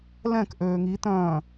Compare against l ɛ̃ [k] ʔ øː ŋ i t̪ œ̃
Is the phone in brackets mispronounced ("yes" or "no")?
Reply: no